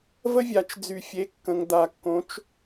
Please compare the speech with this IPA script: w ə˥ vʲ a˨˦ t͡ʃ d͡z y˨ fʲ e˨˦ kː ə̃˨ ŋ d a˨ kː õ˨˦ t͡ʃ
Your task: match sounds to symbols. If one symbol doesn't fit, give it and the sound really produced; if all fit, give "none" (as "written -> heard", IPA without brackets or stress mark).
w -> v